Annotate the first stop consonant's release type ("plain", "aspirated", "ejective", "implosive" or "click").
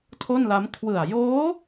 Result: aspirated